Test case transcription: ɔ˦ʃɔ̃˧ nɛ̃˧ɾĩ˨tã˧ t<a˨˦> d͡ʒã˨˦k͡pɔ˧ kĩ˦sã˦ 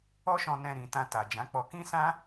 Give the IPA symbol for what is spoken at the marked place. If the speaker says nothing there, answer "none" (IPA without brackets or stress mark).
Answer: a˨